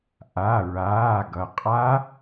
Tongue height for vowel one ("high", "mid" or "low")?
low